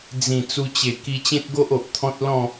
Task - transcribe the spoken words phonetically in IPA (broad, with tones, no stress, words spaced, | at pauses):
d͡zĩ˨˩ t͡su˧t͡ɕe˨˩ ki˧t͡ɕẽ˦t̚ɡo˦ʔ o˨ʔ t̪ʰɔ̃˦t̚ lɔ̃˥˧